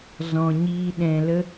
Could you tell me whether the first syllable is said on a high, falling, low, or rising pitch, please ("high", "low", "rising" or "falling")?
low